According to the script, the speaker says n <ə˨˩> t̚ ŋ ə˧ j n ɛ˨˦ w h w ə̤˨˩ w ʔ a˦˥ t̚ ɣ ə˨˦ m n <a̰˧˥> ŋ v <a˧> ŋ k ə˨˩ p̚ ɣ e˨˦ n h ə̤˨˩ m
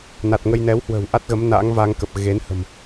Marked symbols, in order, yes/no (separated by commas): no, yes, yes